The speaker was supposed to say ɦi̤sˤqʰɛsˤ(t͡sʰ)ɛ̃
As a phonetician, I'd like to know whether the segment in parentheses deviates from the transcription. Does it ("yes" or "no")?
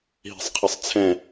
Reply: no